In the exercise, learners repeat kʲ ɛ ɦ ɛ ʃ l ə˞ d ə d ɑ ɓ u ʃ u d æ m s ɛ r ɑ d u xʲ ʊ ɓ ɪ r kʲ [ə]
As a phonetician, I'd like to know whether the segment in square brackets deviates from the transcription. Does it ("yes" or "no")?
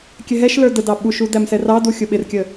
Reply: no